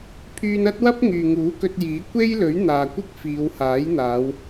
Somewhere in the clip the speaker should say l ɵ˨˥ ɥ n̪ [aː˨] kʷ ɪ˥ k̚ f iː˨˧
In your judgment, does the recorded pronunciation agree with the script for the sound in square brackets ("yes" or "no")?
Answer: yes